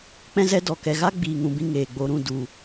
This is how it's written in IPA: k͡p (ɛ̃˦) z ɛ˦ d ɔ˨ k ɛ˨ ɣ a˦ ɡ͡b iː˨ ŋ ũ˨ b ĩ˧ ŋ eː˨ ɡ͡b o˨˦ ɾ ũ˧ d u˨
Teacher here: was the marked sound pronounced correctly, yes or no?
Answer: yes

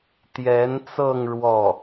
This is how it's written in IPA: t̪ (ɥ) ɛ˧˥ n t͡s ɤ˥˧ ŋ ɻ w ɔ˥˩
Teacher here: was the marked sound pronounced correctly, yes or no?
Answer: no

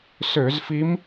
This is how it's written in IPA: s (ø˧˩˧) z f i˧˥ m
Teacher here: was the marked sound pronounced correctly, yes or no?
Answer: yes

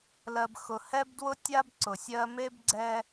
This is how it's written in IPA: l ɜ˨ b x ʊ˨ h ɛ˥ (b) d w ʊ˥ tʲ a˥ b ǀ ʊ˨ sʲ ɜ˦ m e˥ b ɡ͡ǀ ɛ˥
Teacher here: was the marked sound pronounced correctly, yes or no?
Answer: yes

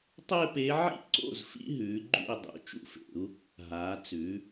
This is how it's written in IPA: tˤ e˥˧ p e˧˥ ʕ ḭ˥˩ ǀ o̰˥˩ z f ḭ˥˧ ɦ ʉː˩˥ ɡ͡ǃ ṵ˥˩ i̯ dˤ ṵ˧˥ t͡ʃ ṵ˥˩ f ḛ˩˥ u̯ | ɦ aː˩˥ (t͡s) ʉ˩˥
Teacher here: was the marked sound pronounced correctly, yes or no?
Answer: yes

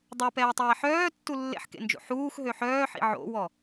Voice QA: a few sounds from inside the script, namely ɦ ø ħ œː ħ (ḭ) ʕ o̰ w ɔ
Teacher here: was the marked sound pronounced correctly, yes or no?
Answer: yes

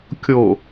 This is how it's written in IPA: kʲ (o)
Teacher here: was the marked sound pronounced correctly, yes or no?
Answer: yes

